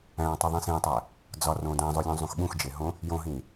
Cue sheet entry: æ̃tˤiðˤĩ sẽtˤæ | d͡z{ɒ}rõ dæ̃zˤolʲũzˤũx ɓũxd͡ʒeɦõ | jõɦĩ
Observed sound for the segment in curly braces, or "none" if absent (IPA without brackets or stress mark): ɒ